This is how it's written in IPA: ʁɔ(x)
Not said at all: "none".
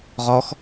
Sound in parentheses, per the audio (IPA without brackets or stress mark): x